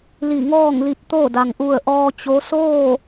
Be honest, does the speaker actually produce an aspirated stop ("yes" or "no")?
no